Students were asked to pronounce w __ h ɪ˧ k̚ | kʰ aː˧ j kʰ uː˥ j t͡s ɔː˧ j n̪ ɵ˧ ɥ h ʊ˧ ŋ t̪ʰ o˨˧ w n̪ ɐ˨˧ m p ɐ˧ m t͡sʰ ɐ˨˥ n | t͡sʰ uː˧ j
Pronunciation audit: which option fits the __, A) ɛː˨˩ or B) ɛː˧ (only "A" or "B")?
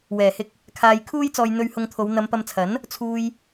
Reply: A